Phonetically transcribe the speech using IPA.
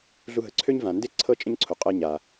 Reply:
ɮu˧ɦə˩ǀʰø˥ɲ vã˩nde˥ ǀʰɤ˥t͡ʃʼə̃˥ɲǀʰo˩qʼɤ˧ ɲa˩

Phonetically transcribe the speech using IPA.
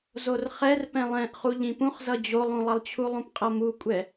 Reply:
zorχɛr pɛ̃lˠɛ̃ʔ χuʎĩpũχzʌ d͡ʑolˠũlˠʌlˠt͡ɕʰu lˠũpqʼʌmukʷʼɛ

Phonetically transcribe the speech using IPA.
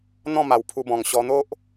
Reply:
n̪ɔ̃˥˧ma˨˩wpʰu˧bɔ̃˨˩ŋ ɕɔ˧n̪o˦ʔ

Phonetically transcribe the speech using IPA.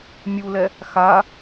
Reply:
mʲulɛ | xa

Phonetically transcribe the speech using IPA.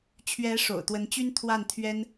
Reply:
t͡ɕʰɥɛ˧˥ ʂo̰˨˩ʊ̯t̪wə˧˥nt͡ɕy˥n t̪ʰwa˥˩nt̪ʰɥɛ˥n

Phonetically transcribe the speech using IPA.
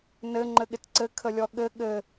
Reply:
nɘ ŋ͡ǃɘɠɪtǀɘ kʰəlʲɔɠɘ ɠɘ

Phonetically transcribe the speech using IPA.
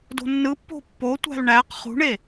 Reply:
do̤nːɯpːo̤ pːotʷæ̤l ɳæq χṳɳe

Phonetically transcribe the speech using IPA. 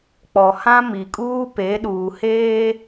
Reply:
k͡pɔ˨hã˦ mi˨kʼuː˦pe˨˦ ɗuː˨heː˦

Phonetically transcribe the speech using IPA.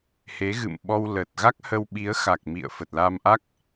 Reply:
he˨˦ɣɨ̰˧˨mɓɔ˧w lə˨˩t̚ ɣa˦˥k̚hə˧wɓi˨˦ə̯ xa˨˩k̚mḭ˧˨ə̯ fə˨˩t̚la˧mʔa˦˥k̚

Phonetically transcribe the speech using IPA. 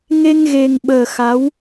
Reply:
ŋe˧ŋɣe˨˩ŋɓəː˨˩ xa˨˦w

